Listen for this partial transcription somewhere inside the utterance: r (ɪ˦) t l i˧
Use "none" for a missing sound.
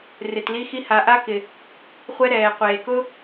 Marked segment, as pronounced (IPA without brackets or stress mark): ɪ˨